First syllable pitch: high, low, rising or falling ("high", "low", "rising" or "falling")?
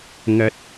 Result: high